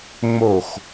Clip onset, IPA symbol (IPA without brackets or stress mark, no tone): ŋ͡m